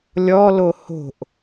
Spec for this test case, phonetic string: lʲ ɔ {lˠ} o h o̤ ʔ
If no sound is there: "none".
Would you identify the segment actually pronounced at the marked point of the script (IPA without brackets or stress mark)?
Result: l